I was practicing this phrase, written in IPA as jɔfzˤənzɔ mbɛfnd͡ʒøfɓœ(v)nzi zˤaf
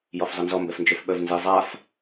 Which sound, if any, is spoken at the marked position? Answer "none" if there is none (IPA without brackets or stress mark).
v